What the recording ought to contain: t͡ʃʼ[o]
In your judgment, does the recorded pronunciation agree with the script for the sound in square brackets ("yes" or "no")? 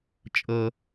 no